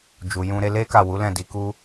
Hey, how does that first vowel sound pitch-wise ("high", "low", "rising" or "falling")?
low